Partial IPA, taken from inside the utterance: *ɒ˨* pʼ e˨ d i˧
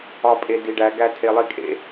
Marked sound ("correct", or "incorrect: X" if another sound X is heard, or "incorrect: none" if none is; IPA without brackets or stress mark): correct